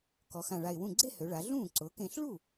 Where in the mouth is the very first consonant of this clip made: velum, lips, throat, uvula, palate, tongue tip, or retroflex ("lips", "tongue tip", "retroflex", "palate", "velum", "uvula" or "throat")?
velum